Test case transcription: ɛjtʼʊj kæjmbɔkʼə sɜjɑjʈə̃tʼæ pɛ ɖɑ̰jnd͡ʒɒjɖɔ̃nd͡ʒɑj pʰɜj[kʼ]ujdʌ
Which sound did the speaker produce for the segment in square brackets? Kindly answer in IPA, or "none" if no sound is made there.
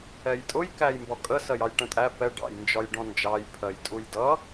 tʼ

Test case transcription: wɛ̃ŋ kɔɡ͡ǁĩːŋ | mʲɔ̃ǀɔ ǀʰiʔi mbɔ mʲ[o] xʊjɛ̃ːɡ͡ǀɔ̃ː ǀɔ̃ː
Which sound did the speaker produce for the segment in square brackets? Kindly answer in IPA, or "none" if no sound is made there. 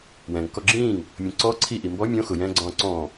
õ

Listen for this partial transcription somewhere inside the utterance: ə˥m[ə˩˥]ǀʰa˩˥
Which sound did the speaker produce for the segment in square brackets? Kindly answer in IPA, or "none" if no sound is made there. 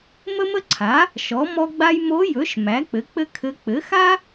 ə˥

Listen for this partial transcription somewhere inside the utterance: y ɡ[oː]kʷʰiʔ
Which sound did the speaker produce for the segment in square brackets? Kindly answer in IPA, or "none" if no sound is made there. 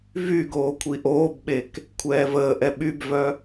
oː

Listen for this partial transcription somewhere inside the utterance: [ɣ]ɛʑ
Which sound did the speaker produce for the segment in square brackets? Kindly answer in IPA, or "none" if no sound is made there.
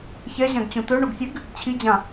ç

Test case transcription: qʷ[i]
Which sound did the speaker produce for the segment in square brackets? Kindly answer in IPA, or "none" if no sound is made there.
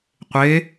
e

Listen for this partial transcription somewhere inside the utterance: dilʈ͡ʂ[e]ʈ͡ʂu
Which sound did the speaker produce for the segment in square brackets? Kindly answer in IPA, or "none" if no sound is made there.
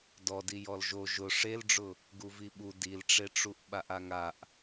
e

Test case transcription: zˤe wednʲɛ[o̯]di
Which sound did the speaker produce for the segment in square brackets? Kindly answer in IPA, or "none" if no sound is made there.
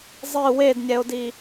o̯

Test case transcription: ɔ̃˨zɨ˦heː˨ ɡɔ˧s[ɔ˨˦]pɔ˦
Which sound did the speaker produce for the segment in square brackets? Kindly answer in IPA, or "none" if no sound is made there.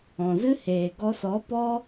ɔ˨˦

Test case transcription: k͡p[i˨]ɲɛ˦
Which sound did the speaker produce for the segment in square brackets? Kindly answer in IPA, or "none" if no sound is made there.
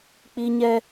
i˦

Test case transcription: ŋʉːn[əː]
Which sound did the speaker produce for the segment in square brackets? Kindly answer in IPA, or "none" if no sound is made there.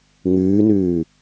ʉː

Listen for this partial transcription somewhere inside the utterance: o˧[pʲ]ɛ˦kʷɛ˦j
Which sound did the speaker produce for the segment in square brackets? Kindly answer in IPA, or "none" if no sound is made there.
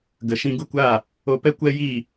p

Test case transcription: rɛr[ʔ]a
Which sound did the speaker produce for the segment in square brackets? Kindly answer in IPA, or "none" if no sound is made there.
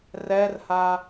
h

